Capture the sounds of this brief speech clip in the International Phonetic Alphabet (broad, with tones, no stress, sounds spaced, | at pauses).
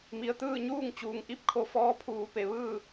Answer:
m i˩ ə̯ t̪ ɯː˥˨ ɲ uː˥˨ ŋ t͡ɕ uː˩ ŋ ʔ i˥˨ p̚ kʰ o˧ f ɔː˧˥ pʰ uː˩˧ p e˩ ʋ ɯː˥˨